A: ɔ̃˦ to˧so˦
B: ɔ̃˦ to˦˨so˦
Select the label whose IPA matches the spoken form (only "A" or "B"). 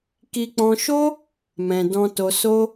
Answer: A